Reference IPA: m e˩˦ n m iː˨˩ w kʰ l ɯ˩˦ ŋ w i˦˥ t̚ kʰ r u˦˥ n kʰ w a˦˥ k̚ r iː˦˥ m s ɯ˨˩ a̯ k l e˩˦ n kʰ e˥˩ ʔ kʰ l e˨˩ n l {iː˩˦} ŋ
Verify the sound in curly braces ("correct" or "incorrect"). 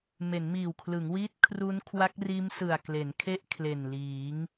correct